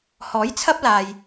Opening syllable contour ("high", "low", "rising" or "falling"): rising